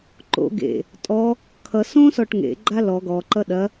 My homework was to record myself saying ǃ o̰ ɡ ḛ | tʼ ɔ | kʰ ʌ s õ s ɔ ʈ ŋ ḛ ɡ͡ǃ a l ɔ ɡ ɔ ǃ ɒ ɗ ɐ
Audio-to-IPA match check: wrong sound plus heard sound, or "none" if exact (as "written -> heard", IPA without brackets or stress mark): ɒ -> ʌ